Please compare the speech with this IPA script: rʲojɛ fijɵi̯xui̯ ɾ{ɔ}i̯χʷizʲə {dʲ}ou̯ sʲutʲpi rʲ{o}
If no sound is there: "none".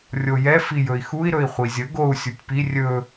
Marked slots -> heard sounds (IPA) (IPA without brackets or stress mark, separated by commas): ɵ, ɡ, ɵ